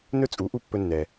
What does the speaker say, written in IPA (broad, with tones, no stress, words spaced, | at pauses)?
nɵ˥t͡sʼu˩˥ ʔu˥˩pːɵ˧nːɛ˩